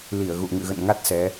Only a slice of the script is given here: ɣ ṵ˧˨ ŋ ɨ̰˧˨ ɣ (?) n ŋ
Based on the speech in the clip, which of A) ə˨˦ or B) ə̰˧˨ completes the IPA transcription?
B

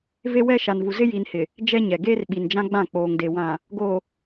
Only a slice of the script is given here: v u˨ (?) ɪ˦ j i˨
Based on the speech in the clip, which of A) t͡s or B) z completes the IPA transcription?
B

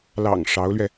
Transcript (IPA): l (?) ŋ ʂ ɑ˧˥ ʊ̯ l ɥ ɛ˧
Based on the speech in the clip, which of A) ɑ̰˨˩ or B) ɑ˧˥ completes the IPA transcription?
A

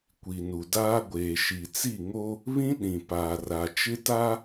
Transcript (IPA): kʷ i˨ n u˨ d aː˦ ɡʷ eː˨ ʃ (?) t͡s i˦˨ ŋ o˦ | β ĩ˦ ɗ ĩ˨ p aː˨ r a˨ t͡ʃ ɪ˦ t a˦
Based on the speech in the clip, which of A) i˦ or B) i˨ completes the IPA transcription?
B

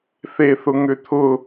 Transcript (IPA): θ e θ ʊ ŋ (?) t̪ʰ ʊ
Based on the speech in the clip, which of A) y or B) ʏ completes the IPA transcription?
B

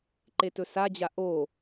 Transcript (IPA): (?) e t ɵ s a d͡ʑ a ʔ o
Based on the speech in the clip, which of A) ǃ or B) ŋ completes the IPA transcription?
A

